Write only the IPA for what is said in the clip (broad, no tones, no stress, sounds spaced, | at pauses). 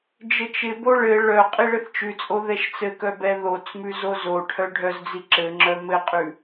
d͡ʒ ɘ t͡ʃ ɪ b o ɭ ɘ ɭ œ qʼ i ɭ ɘ θ t͡ʃ ʉ t͡sʼ o ð ɛ ʃ t͡s ɘ k œ b ɛ ð o t͡s m ʉ z o z o ʈʰ œ ɖʱ œ z d͡z i ǁ ɘ ŋ͡ǁ œ m ɘ qʼ ʉ